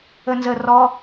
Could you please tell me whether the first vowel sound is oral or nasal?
oral